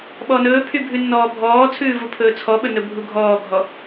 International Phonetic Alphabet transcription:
ɓ ɔ n ɵː pʰ y bʱ ʉ nː ɔː bʱ ɔː t͡sʰ ʉː v u pʰ ɵː t͡sʰ ɔ ɓ ɵ n ɵ bʱ u ɡʱ ɔː ɡʱ ɔ

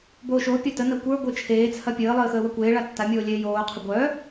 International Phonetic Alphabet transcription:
b oː ʃ o pʲ ɐ t ə n ɐ kʷ ə˞ ɡʷ ə˞ t͡ʃʰ eː t͡sʰ ɐ pʲ əː lˠ əː x əː w ɐ kʷ eː ɭ a tː a mʲ oː lʲ eː j oː qʰ ə ɡʷ œ

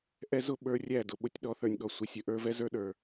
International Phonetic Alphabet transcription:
ʔ ɛ˦ z ʊ˦ ɓ ə˞˦ rʲ æ˦˨ d ʊ˨ ɓ ʊ˦ tʲ ɗ ɔ˦ θ ə˞˨ nʲ ɠ ɔ˨ sʷ ɪ˨ sʲ ə˨ ʔ ə˞˦ v ɛ˦ z ə˞˦ ɗ ə˞˨

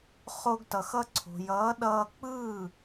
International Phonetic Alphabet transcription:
χ o˧ ɡ t ʌ˩ x ʌ˧ ǀʰ o̤˩ j ʌː˩˥ ɗ ʌː˧ k͡p ɯː˥˩

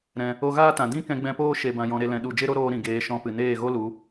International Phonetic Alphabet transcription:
ɾ ɛ̃˧ | o˧ ɣ aː˦ t ã˨ d ĩ˦ k ɛ̃˧ ɡ͡b ɛ̃˧ p oː˦ ʃ e˧ b ã˧ j ɔ̃˧ ɾ e˦ l ɛ̃˧ ɗ u˦˨ d͡ʒ e˦ ɾ o˦ ɾ oː˧ ɾ ĩ˨ ɡ eː˧ ʃ ɔ̃˧ p ɨ˨ n eː˦˨ ɣ o˦ l u˨˦

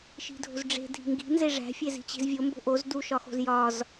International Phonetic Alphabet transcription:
ʃ i̤ dʱ o̤ z ɖ͡ʐ e̤ dʱ i̤ ŋ ɡ i̤ n z e ʐ æ̤ fʲ e z i̤ t͡ɕ i̤ z vʲ o m b o̤ ʔ o z d u ʃ ɒ x o̤ z j ɒ z

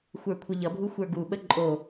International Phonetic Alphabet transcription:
xʷ ə˞ kʷʰ ʌ ʎ ʌ bʱ u xʷ ə˞ ɡ u ɓ ə ǃʼ o

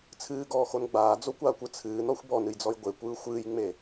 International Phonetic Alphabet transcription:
t͡sʰ ɨː ɡ ɔː x o n ɡ͡b aː d͡z o kʷ aː kʷ ɯ t͡sʰ ɨː n ɔ xʷ b ɔ n ɨ j d͡z ɔ j ɡʷ e kʷ ɯː xʷ ɨː j ŋ͡m e

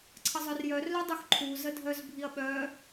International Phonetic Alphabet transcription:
ǀʰ ə zˤ œ r j œ r l œ dˤ u x ǃʰ u z ə dʱ œ z bʱ i ɐ̯ ɓ œ

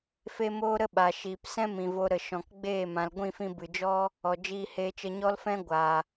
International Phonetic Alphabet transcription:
f e˦ m oː˦ ɾ ə˦ ɓ a˨ ʃ iː˨ p s ɛ̃˦ m ĩ˨ v o˧ ɾ ə˨ ʃ ɔ̃˨ k ɡ͡b eː˦˨ m ã˨ l ɡʷ ĩ˦˨ f ĩ˧ b ɨ˨ d͡ʒ ɔ˦ | ɔ˨ d͡ʒ iː˧ h eː˧ t͡ʃ ə˧ ɲ ɔ˦ l f ɛ̃˦ ɡʷ a˨

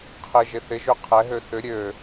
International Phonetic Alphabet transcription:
qʰ ɪ ʒ ɪ θ ɪ ʒ ø qʰ ɛ ɦ ø θ ʏ ɾʲ ø

